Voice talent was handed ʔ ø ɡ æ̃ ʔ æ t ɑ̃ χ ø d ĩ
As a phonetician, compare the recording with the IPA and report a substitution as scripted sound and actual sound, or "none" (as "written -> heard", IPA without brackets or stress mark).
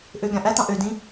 χ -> ʔ